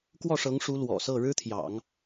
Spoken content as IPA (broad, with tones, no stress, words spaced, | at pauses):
kwɔ˥˩ʂɤ˧˥ŋʂu˧˥ lwɔ̰˨˩sɤ˥˩ ɻɻ̩˥t̪ʰjɑ̰˨˩˦ŋ